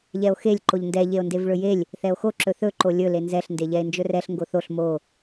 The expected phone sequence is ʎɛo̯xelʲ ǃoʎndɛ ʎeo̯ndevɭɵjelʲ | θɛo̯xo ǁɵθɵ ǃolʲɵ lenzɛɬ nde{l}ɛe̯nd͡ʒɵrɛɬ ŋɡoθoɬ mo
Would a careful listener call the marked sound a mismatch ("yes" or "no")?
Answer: yes